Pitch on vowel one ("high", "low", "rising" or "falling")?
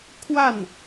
falling